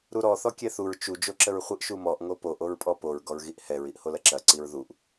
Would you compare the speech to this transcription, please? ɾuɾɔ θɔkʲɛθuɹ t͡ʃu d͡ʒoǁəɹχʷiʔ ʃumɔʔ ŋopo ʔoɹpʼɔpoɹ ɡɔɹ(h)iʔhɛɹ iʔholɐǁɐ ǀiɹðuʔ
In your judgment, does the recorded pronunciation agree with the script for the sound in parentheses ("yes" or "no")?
no